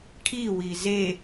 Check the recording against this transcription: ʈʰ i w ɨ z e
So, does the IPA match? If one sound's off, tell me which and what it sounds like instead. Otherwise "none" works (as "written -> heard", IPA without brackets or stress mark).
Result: ɨ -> i